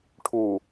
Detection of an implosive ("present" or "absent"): absent